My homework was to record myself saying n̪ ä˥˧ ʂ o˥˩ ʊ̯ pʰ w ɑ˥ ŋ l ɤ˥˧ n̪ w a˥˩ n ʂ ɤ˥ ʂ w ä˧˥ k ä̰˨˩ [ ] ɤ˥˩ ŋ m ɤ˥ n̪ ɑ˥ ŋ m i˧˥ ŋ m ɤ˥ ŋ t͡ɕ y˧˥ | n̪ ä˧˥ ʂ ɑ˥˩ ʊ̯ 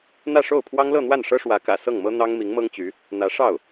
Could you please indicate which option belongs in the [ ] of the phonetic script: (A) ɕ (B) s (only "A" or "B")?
B